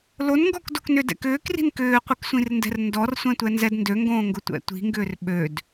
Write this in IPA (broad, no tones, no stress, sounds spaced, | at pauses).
l o n ŋ ɡ ɔ k d o k n ʏ d ɛ̰ k ʏː k r i̤ n k ʏː qʷ i k sʷ ĩ r n d ɛ̤ r n d ɔ r sʷ ɛ̃ tʷ ɛ n z ɛ d n d ø ŋ ɡ õː ŋ ɡ ʊ tʷ ɛ̰ tʷ i̤ ŋ ɡ ʏː r ɓ ø d